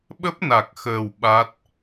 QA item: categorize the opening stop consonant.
implosive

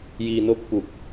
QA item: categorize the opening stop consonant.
plain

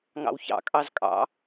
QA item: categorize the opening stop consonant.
ejective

